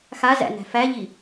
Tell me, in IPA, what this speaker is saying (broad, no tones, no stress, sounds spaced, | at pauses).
x a z æ̰ n æ̤ f æ ʎ i